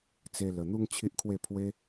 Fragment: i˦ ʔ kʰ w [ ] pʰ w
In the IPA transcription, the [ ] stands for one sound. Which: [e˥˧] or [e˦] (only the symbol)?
e˥˧